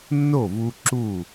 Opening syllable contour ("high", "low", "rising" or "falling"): falling